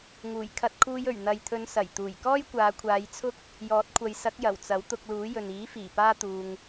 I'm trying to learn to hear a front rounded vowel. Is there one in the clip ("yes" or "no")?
no